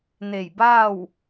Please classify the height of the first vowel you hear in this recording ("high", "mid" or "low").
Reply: mid